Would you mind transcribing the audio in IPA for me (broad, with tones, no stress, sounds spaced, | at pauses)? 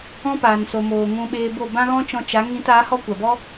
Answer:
ɔ̃˦ p aː˨ n s o˨ m oː˨ ŋ ũ˧ ɓ eː˧ b o˦˨ b ã˦ ɣ ɔ̃˦ t͡ʃ ɔ̃˧ t͡ʃ a˨˦ ŋ ĩ˧ t a˨˦ h ɔ˦ kʷ a˨ b ɔ˦